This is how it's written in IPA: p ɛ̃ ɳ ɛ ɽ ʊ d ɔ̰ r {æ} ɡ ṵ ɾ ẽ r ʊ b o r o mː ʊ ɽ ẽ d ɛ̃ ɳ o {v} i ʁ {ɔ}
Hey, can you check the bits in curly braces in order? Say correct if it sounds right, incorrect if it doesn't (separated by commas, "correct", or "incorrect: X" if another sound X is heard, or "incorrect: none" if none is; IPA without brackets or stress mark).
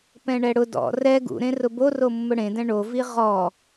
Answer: incorrect: ɛ, correct, correct